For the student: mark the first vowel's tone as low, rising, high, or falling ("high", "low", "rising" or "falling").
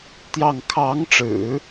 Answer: falling